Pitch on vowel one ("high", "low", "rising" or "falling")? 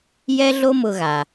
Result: high